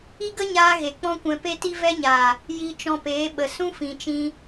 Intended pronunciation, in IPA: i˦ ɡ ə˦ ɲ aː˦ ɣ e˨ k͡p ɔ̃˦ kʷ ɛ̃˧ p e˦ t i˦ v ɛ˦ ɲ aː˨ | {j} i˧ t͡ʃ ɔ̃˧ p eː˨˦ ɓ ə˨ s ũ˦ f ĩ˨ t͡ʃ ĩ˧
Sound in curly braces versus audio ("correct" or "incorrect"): correct